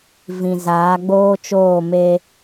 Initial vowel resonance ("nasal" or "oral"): nasal